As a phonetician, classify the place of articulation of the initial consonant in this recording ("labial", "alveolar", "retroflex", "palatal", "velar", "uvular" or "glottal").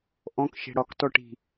glottal